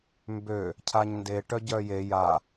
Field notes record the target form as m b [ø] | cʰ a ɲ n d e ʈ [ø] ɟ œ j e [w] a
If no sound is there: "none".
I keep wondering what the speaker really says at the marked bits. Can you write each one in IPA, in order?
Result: ø, œ, j

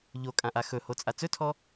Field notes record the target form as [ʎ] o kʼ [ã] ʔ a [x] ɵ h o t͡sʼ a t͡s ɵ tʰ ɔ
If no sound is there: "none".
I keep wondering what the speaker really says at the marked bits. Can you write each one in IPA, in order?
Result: ʎ, ã, x

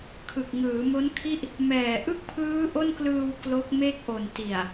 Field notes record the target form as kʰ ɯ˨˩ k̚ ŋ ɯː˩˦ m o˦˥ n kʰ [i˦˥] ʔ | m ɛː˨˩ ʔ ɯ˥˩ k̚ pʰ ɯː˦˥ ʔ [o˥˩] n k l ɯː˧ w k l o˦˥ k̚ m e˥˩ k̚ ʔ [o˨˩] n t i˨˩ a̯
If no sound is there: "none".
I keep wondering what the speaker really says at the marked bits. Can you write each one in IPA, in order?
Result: i˥˩, o˥˩, o˨˩

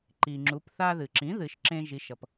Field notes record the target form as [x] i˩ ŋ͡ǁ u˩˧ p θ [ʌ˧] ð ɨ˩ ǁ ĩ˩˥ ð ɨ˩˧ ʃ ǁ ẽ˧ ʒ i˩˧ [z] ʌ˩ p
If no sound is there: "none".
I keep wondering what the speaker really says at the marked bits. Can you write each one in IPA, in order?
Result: ǃ, a˧, ʃ

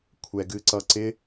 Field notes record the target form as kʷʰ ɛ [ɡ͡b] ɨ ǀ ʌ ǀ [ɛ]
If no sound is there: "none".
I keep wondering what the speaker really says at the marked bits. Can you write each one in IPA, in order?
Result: ɡ, ɪ

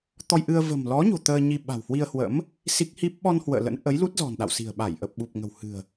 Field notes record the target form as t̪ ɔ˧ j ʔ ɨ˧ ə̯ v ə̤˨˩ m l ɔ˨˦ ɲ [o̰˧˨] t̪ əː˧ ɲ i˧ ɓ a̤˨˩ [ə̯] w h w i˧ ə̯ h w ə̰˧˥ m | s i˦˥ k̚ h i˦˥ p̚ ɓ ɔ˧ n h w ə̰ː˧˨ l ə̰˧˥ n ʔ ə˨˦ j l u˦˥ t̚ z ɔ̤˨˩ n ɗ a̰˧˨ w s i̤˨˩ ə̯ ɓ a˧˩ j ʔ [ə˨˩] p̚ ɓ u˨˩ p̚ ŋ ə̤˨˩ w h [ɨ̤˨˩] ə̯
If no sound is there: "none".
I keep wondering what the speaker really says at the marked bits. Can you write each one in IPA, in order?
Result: o̤˨˩, none, ə˨˩, ɨ̤˨˩

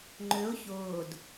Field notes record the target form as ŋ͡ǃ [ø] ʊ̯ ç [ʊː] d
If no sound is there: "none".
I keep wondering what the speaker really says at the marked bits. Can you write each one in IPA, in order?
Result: ø, ʊː

